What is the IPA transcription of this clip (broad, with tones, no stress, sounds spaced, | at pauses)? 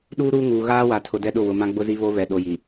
ɗ uː˦ ɾ uː˦ ŋ uː˨ ɣ aː˦ w a˨ tʰ ʊ˨ d ɛ˦ ɗ ʊ˦˨ w ʊ˨ m ã˦ ɡ͡b ʊ˦ z i˦ β o˦ β ɛ˨ ɗ o˨ j i˨